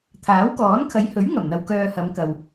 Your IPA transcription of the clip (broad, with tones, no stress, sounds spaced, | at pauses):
t̪ʰ aː˨˥ w k ɔː˨˥ n kʰ ɐ˨˧ j h ɵ˨˥ ɥ ŋ ɐ˨˩ m n̪ ɐ˨ w k œː˧ h ɐ˨˧ m k ɐ˨ w